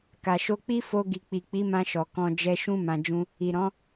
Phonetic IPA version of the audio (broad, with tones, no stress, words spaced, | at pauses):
ka˨ʃo˧k͡pi˦ fo˧ ɡi˨k͡pi˨k͡pi˨˦mã˧ ʃɔ˨kɔ̃˧ d͡ʒɛ˧ʃũ˦ mã˧d͡ʒũ˦ | i˨ɾɔ̃˨˦